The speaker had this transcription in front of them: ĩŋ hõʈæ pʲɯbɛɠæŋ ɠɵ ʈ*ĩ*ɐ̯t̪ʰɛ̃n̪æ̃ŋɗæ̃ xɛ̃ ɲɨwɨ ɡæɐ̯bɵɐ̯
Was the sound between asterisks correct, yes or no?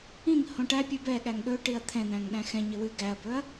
no